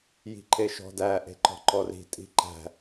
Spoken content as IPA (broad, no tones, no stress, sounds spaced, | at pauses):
j i̤ ǃ e ʃ ɔ̤ d æ ʔ e̤ ǃ ɔ̤ ǃ ɔ r i̤ tʼ i̤ ǃ æ̤